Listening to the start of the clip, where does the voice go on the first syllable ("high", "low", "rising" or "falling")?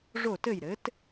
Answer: falling